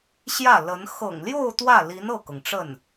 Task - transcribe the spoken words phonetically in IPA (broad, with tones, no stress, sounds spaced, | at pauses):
ɕ j ä˥˩ l ə˧˥ n x ɤ̰˨˩ ŋ l j o˥˧ ʊ̯ t̪ w ä˥˩ l i˧˥ n ɤ˥˩ k ɤ˩ ŋ ʈ͡ʂ ə˥˩ n